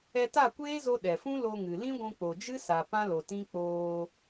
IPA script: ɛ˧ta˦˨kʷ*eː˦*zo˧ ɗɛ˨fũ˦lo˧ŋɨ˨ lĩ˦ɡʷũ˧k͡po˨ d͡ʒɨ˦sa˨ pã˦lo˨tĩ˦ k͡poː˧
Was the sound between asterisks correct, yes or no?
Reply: yes